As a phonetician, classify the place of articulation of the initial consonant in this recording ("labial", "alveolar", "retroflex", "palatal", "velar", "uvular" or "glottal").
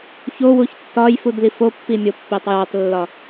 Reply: palatal